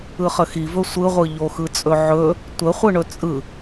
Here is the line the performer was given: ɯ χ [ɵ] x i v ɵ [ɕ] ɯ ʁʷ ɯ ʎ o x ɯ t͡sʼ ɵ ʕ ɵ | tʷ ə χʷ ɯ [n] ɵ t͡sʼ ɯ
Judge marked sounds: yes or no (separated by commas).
no, no, no